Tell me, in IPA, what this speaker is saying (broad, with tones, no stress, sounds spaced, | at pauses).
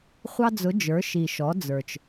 χʷ ɑ˧ d͡z ʊ˩˧ d͡ʒ ə˞˩˧ ʃ i˩ ʃ ɔ˩˧ d͡z ə˞˩ t͡ʃ